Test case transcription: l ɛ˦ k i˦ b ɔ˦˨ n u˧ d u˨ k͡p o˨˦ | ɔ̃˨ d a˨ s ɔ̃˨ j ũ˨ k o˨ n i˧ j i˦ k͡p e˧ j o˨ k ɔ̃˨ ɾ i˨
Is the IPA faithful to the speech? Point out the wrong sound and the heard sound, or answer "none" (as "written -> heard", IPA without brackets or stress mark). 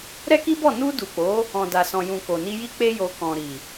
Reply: l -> ɾ